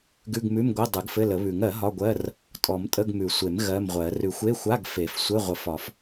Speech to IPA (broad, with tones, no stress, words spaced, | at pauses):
ɡʉ˧˥˧ɡmʉ˧˥˧mɡʷɘ˧˥˧ dˤʉ˨˩˦ɡfɘ˧˥˧lə˨˩˦βʉ˨˩˦ŋ ɜ˨˩˦ ɦɒ˧˥˧ɡʷɜ˧˥˧r | tʼɔ˨˩˦m tʼə˧˥˧ɡmʉ˨˩˦sʷe˨˩˦m ɣɜ˧˥˧mʁʷɜ˨˩˦ rʉ˨˩˦xʷe˧˥˧ xʷa˧˥˧ɡfe˨˩˦f sʷɘ˧˥˧ ʁʷə˨˩˦f ɒ˨˩˦f